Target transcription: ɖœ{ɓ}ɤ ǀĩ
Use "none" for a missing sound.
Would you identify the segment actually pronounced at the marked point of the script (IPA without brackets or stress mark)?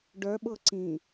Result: ɓ